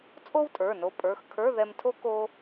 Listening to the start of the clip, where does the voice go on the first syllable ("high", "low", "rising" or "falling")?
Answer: high